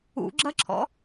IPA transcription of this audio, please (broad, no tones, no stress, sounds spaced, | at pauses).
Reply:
ṵ ɡ͡ǁ ɐ ǁʰ ɔ̰